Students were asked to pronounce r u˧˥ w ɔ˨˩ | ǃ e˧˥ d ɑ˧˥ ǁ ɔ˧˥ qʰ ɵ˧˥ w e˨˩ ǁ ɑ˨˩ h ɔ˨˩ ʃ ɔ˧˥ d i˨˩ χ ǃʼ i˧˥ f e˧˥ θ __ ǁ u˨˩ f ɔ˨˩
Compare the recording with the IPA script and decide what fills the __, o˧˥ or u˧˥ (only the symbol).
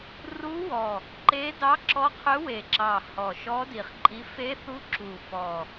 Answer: u˧˥